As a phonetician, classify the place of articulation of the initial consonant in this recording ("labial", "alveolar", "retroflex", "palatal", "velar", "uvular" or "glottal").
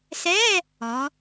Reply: alveolar